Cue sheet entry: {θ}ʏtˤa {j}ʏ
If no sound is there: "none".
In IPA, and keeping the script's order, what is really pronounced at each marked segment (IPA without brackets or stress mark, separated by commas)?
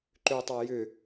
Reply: ǃ, j